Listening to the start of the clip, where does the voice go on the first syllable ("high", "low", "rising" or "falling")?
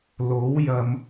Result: rising